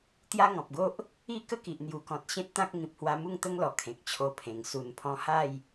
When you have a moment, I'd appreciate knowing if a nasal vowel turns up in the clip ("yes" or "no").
yes